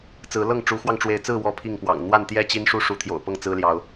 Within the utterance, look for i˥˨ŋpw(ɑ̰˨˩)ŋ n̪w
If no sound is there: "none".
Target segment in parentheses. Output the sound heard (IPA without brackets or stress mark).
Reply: ɑ̰˨˩